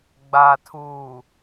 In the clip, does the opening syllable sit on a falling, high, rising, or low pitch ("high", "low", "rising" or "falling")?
low